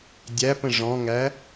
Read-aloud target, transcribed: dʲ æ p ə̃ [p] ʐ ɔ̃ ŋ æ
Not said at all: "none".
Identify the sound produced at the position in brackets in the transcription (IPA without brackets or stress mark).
none